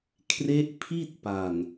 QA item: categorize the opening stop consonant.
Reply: aspirated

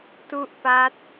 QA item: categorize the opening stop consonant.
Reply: plain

